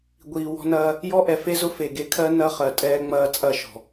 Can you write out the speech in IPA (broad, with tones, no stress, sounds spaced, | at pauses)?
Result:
ɡʷ iː˨ w ɔ̤˦ n ɐː˦ | j ɔ˦ ʔ ɛ˨ f e˦ z ʊ˦ f e˨ ɡ e˦ kʰ ɜ˦ n ɐ˦ χ ɜ˨ tʼ ɛː˦ ŋ͡m ɐː˦ t͡sʼ ɐ˦˨ ʃ ɔ̤˨